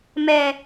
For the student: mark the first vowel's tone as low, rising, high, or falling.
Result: high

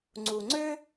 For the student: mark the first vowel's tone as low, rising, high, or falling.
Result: low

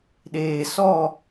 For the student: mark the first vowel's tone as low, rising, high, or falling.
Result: low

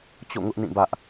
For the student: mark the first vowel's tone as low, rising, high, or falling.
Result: falling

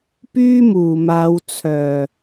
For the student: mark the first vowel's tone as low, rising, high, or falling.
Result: high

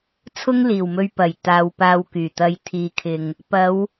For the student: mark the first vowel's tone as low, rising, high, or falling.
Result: high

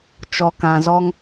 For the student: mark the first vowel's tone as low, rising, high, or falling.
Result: low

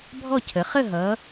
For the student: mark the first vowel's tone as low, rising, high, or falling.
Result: falling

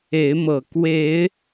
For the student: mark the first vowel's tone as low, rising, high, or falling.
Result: rising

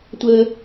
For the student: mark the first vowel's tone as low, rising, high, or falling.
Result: high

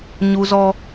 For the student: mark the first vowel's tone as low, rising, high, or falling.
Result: high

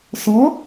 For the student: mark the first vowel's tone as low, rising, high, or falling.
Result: rising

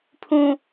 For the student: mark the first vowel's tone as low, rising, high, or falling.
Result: low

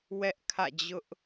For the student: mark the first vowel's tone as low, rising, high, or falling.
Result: high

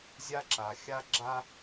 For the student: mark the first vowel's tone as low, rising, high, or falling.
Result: high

